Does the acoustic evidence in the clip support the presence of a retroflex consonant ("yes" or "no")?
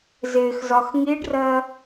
yes